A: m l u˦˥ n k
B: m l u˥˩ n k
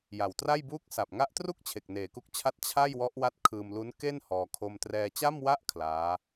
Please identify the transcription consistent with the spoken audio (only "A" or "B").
A